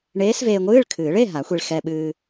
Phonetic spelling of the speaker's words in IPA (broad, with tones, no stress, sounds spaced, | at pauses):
ɳ eː˧˥ s v eː˧ ŋʷ ɨː˧˥˧ ɭ kʰ ɨː˨˩˦ ɭ e˧˥˧ ɦ a˨˩˦ xʷ i˧ ɭ x ɛ˧ ɓ ɨː˧